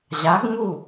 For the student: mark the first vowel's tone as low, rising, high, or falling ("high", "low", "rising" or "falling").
rising